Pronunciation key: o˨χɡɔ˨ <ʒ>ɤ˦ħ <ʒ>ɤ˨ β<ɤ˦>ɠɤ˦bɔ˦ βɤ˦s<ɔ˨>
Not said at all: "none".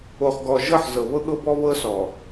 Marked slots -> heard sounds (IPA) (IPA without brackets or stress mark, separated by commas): ʒ, z, ɤ˦, ɔ˨